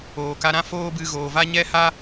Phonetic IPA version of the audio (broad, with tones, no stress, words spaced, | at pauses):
oː˨ka˧ɾã˦ foː˦bɨ˧ ɣoː˨va˦ ɲɛ˦ ha˦